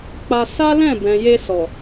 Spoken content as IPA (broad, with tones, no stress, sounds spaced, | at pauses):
k͡p a˧ s a˦ l ɛ̃˦˨ b ɛ̃˨ j e˧ s ɔ˨